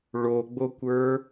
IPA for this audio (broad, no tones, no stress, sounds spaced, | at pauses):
ɭ o ɡ͡b o kʷ ə˞